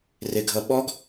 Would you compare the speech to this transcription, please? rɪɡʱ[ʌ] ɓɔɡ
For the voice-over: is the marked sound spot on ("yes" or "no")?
yes